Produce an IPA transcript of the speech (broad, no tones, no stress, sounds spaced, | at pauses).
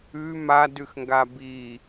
ʉ m a d ʉ x ŋ ɡ a b i